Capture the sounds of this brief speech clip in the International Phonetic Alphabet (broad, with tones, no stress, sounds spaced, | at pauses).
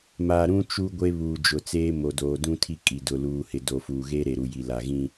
m aː˨ ɾ ũ˦ t͡ʃ u˦ ɡʷ e˦ β uː˨ d͡ʒ ʊ˨ t͡s eː˦ m o˨ d oː˨ d ũ˦ tʰ i˦ kʼ i˨ d ʊ˨ l uː˨ h ɪ˨ d o˨ f uː˨ ɣ eː˦ ɾ e˨ ɾ u˨ j i˨ l a˨ ɣ ĩ˦